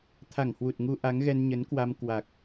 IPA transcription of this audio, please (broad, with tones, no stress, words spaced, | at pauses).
t̪ʰa˧˩ŋhwu˨˩t̚ŋu˧ ʔa˨˦ŋ ɣɛ˧nɲə˨˦n kwa˧mkwa˨˩k̚